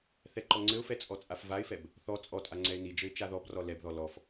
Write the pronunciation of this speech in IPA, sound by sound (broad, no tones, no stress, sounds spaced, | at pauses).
θ ɛ ǃ ɔ ŋ͡ǀ ɘ ʊ̯ f ɛ t͡sʼ ɔ t͡sʼ a f v a ɪ̯ f ɛ b | θ ɔ t͡sʼ ɔ tʼ a ŋ͡ǀ ɛ ɪ̯ n i d͡ʒ ɘ ɪ̯ t͡ʃ a ð ɔ b r ɔ l ɛ b ð ɔ l ɔ f